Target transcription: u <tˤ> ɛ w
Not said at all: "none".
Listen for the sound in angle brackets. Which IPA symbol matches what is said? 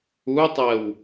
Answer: tˤ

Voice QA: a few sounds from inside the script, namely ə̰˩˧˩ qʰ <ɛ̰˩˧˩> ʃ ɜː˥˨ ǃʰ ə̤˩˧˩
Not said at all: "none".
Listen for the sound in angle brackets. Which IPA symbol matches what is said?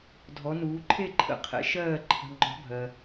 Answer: ɛ̰˨˥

